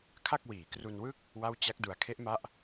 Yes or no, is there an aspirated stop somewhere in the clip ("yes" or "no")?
yes